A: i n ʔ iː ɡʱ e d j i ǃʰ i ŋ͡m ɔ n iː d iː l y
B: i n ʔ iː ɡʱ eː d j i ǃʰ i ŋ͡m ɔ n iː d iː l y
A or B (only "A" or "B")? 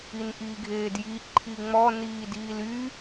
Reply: B